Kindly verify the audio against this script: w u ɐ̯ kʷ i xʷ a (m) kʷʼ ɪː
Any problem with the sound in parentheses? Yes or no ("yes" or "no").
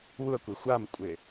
no